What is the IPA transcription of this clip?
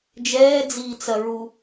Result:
d͡ʒ ɛː d͡z iː t͡s ɐ ɹ u

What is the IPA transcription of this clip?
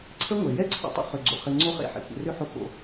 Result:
ǀʰ ə˦ ŋʷ ɛ˨ j ɛ˦ ǀʰ ə̰˧ tˤ ə̰˧ χ ʏ˨ ɡ͡ǀ o̰˨ χ e˧ ŋ͡ǀ o˦ χ ḛ˧ ħ ḛ˨ kʷ ə̰˧ r ʏ˦ ħ o˦˨ k͡p o̰˧

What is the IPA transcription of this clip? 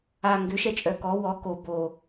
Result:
a ŋ ɡ ʏ ʃ ɛ t͡ʃʼ œ k ɔ w ɔ k o b o

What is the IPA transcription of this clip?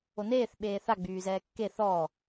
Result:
o n eː θ ɓ eː θ a ɡ͡b yː z ɛː kː e θ ɔː

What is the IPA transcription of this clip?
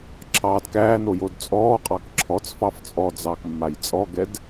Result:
ǁʰ ɑː d k æː n o j o d t͡sʼ ɔː qʼ ɑ k ǁʰ ɔ t͡s f ɑ f t͡sʼ ɔ d͡z ɑː k mː a j t͡sʼ ɔ ɡ ɛ d

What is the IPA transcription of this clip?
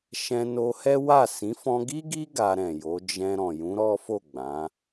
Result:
ʃ ɛ̃˧ n o˧ h ɛ˦ w a˦˨ s ĩ˨˦ f ɔ̃˧ ɡ i˦ ɡ i˦ ɡ a˧ ɾ ɛ̃˨ j o˨˦ d͡ʒ ɛ̃˧ ɾ ɔ̃˨ j ũ˨˦ ɾ ɔ˦ f o˦˨ ɡ͡b ã˨˦

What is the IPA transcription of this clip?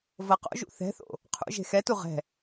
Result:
v ɤ q o̰ ʒ ṵ θ ɛ̤ θ o̰ | qʰ ṵ ʒ e̤ x ɛ t u ʁ ɛ̤

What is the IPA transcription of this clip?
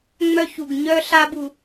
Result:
ŋ͡m œ˥ ç u˧ ɡ ɲ œ˥ ɬ a˥ b u˧

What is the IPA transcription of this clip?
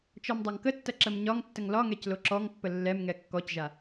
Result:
t͡ʃ ɔ m dˤ o ŋ k ə tː ɐ ǁ ə m ɲ ɒ ŋ tː ə ŋ l ɒ ŋ ɛ c l o ǁ ɔ ŋ pː ə lː ɛ m ŋ ɛ kː ɔ c ʒ a

